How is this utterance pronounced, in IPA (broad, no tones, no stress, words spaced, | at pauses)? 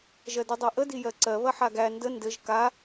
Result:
ʒɜdidˤɜʔə dijɜǀɜ βɐħaɡæ ndə ndɘʒ ka